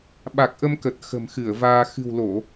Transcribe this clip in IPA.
ɓ a˨˩ k̚ ʔ ə˧ m k ə˨˩ t̚ x ə̤˨˩ m x ɨ˧˩ ə̯ v aː˧ x ɨ̤˨˩ w l o˧˩˨

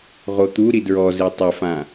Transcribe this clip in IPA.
ʁ o t̪ u ɾ i d ɹ ɔ z e tˤ ɘ f ã

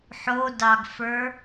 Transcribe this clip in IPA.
ħ o d ɑ ɡ f ə˞

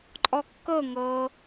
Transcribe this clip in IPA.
ǃʼ ɔ kː ɤ ŋ ɤ

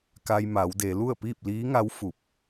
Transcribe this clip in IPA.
k a˧ j m a˩˧ w d e˩˧ l u˥˨ ə̯ p iː˥˨ p̚ l iː˧˥ ŋ a˧˥ w f u˧˩ p̚

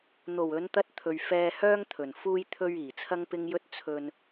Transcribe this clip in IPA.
n̪ o˨˩ w ɵ˨˧ n t̪ ɐ˧ t̚ t̪ʰ ɵ˨ ɥ f ɛː˧ h œː˥ ŋ t̪ʰ ɵ˨˩ n f uː˧ j t̪ʰ ɵ˧ ɥ iː˨˩ t͡sʰ ɐ˥ ŋ p ɪ˥ ŋ j ɵ˥ t̚ t͡sʰ ɵ˧ n

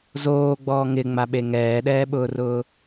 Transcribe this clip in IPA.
z oː ɡ͡b ɔː ŋ ɪ ŋ͡m a ɓ e ŋ ɛː ɗ ɛː ɓ ʊː r ʊː

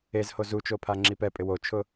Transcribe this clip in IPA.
e z h o z u t͡ʃ o pʰ a ŋ͡ǁ i p ɛ pʼ ɪ w o t͡ʃʰ ʊ

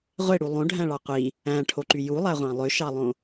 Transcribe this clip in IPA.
ʁʷ e ɽ u lˠ õ ɖʱ æ̃ ɭ ɑ qʷ i | æ̃ ʈʰ o ǃ y j u lˠ æ ʁʷ ɑ̃ lˠ ø ʃ ɑ lˠ õ

